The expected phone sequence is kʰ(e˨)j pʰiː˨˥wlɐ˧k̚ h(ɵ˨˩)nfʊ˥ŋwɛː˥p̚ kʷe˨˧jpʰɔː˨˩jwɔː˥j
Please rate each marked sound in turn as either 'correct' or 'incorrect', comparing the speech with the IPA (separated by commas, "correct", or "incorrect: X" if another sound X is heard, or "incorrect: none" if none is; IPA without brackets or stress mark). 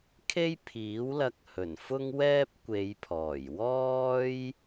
incorrect: e˥, correct